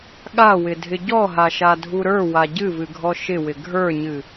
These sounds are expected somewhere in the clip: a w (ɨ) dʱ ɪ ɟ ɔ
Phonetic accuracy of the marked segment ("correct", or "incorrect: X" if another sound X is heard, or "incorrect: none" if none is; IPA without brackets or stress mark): incorrect: ɪ